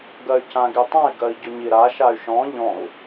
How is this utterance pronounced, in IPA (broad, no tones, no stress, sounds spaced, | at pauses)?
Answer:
ɡ ɜ y̯ c ã ɡ i tˤ ã i̯ ɡ ɜ i̯ ɟ ʊ ɲ i ɾ a ʃ a y̯ ʃ ɔ̃ ʎ ɔ̃ u̯